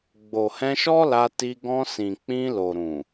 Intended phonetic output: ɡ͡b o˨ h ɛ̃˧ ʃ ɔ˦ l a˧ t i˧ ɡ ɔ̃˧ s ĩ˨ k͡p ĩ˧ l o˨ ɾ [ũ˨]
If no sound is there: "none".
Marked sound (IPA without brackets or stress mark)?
ũ˨